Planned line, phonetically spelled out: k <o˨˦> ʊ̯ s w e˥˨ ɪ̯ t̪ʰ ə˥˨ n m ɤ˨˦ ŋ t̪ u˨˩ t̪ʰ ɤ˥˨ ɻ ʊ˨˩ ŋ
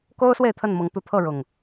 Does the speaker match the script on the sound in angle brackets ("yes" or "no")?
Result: no